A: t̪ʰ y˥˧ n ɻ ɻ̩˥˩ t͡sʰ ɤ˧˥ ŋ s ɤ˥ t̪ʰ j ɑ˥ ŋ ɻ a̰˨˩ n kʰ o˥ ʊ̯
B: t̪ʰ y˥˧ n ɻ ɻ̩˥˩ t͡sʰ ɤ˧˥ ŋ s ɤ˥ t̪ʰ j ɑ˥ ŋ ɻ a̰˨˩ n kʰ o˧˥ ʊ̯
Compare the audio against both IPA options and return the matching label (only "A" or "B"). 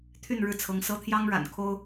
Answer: A